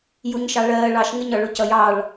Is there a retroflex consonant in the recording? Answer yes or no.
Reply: yes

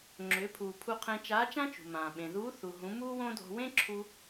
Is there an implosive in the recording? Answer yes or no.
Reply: yes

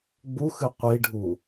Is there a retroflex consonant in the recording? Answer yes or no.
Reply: yes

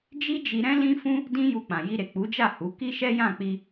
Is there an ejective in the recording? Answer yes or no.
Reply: no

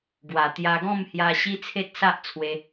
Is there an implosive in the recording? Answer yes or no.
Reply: no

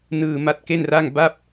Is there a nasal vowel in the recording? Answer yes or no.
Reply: no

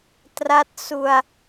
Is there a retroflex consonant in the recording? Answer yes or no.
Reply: no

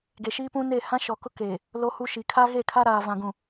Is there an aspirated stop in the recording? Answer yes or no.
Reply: yes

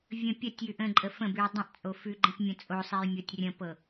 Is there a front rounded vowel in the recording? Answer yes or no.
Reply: no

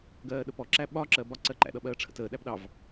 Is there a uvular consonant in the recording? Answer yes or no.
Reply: no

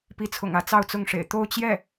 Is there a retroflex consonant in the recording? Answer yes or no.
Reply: yes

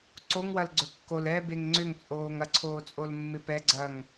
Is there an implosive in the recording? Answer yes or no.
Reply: no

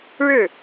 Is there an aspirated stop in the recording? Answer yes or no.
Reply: no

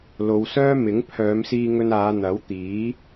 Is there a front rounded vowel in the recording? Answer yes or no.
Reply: yes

